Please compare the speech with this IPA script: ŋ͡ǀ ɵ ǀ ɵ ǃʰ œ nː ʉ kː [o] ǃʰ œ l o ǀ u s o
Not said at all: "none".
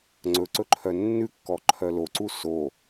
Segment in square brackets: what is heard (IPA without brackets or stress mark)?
ɔ